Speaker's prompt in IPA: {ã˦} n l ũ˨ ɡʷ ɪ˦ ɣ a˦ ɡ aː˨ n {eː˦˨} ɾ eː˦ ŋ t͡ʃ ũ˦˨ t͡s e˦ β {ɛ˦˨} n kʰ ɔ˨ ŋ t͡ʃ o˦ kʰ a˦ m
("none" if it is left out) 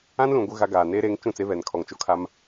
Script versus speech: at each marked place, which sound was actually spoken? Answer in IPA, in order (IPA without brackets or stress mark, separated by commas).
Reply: ã˦, eː˦, ɛ˨